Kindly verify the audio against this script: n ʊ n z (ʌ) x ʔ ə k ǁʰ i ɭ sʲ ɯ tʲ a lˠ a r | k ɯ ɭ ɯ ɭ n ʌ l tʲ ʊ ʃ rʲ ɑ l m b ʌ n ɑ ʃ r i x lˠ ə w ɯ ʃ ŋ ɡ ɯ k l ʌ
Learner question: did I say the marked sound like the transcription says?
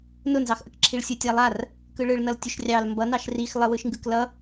no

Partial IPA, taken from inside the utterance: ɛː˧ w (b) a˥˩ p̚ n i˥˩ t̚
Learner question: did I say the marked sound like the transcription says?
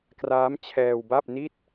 yes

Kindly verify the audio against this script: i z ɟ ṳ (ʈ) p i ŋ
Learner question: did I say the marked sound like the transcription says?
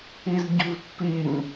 no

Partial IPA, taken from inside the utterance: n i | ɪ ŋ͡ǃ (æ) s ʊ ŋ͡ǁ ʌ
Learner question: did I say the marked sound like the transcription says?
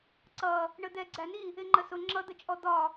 no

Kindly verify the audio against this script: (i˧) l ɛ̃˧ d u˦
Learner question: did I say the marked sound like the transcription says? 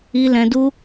yes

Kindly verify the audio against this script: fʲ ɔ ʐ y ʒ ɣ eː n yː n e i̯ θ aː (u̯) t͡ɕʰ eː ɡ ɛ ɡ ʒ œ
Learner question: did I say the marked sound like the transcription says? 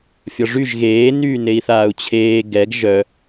yes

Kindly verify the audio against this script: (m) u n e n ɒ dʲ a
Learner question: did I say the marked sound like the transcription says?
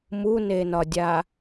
yes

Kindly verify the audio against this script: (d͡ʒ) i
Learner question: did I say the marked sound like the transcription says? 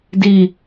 no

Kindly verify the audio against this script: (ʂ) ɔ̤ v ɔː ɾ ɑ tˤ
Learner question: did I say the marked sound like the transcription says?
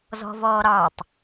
no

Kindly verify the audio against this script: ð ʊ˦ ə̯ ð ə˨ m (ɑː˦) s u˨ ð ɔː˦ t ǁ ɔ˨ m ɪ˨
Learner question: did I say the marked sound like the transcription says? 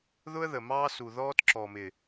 yes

